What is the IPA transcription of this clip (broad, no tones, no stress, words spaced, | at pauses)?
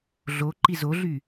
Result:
ɮo ǃizoɮy